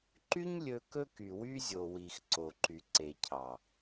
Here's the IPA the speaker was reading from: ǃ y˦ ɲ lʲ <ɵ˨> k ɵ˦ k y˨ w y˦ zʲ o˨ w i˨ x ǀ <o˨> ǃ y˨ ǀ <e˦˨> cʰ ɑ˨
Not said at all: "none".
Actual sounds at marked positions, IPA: ɵ˦, o˨, e˨

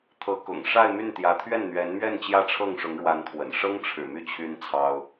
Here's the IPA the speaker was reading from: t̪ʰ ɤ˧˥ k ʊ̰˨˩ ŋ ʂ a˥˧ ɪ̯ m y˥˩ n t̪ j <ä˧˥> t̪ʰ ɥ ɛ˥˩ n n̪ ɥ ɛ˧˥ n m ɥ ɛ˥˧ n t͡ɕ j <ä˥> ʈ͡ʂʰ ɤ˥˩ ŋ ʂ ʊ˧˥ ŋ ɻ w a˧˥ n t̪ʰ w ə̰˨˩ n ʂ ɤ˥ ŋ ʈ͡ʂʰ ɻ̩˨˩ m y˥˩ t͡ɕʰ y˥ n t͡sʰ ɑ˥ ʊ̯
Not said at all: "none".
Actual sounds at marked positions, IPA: ä˧˥, ä˥˧

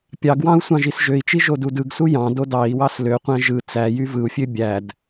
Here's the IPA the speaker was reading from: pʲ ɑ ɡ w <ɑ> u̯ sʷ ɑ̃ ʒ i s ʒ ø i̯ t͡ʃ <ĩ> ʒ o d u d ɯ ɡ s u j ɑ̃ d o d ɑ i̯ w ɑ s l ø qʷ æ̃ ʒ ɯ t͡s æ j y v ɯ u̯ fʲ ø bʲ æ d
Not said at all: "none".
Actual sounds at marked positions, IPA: ɑ̃, i

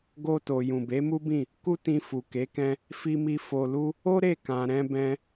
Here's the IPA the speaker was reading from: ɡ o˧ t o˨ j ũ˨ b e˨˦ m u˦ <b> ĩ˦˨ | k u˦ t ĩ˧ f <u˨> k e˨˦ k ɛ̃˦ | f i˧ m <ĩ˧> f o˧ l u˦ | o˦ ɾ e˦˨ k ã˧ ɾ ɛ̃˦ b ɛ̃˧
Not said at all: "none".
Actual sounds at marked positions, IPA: b, u˨, i˧

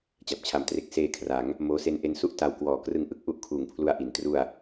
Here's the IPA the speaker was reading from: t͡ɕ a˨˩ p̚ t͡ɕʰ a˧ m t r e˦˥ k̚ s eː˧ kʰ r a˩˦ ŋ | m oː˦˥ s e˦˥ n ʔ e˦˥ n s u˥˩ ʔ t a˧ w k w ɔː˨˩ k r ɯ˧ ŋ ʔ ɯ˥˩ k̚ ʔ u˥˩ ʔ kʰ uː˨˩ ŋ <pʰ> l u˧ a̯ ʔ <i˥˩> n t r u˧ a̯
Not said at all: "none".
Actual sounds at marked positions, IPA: pʰ, i˩˦

